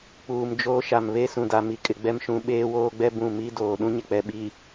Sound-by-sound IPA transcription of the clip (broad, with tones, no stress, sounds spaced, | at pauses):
k͡p uː˨ m d͡ʒ oː˦ ʃ a˨ m β e˦ s ũ˨ d a˨ m i˨ kʼ ɪ˨ ɡ͡b ɛ˦ m ʃ ũ˨˦ ɓ eː˦ w oː˦ ɡ͡b ɛ˦ b ũ˦˨ m i˦ d oː˨ ɗ ũ˦ ɲ ɪ˨ k͡p ɛ˨ ɓ i˨